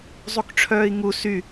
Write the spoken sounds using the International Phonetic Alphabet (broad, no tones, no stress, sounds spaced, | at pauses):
zˤ u k ʈ͡ʂʰ œː i̯ ŋ u s y